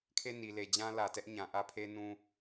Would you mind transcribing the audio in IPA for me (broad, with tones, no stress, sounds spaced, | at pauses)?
kʰ e˦˨ n i˨ l e˨ d͡ʑ ã˦ l ä˨ t ɛ˦ ʔ ɲ ã˨ ʔ ä˦ pʰ e˦ n ũ˦